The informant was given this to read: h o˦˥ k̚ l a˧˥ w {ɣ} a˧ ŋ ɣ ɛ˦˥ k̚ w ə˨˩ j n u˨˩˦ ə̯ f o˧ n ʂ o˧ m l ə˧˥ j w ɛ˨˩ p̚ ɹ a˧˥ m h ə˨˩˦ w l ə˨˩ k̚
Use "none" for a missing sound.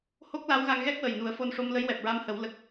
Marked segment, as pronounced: ɣ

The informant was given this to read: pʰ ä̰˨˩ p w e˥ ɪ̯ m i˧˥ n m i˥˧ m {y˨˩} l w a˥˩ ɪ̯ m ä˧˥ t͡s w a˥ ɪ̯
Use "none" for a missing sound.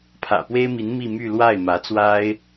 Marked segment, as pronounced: y˥˧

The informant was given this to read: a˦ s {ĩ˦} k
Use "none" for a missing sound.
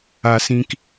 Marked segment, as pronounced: ĩ˦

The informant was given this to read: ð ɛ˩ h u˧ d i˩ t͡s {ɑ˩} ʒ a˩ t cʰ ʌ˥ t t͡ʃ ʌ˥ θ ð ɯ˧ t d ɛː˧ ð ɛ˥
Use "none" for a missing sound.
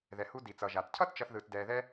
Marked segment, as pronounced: ʌ˩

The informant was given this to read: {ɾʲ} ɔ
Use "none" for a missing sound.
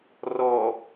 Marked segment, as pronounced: r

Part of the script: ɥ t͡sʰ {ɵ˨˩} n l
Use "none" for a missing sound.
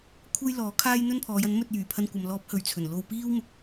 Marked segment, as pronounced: ɵ˨˩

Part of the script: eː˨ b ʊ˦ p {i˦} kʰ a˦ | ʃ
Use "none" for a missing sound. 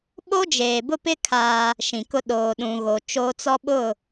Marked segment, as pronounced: ɪ˦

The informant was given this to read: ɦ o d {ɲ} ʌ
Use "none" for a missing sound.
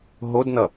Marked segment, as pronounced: n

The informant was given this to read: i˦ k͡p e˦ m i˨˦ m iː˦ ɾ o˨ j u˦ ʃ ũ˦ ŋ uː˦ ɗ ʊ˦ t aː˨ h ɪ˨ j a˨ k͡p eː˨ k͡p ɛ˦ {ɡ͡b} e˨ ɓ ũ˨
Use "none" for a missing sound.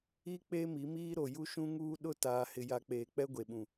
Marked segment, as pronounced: ɡʷ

